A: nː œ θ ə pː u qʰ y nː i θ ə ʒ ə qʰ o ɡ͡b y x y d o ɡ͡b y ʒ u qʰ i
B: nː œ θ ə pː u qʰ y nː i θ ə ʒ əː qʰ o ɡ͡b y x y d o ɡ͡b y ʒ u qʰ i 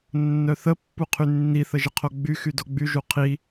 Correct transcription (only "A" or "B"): A